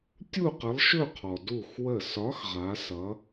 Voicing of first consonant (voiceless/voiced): voiceless